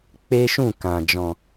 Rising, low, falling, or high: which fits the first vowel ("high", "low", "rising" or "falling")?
high